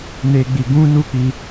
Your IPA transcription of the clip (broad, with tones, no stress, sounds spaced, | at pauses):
n e˦ ɡ͡b i˧ ɡ ũ˦ n u˦ k͡p i˧